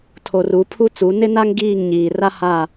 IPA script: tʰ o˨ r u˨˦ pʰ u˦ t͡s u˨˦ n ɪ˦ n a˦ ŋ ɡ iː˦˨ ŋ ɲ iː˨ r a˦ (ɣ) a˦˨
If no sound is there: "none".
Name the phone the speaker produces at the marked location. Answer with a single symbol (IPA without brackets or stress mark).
h